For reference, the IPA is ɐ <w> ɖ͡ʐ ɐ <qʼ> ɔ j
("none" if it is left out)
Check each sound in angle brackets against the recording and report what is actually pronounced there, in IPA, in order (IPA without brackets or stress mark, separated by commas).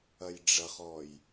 j, χ